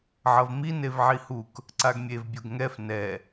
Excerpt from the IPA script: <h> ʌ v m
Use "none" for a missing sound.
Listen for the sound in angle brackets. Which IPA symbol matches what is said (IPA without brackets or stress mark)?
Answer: ʕ